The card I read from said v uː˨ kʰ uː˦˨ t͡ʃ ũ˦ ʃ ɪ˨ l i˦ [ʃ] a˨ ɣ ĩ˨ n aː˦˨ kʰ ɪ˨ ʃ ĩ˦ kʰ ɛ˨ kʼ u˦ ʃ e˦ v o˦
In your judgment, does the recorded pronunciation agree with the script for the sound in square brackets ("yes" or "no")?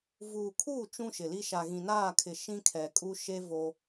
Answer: yes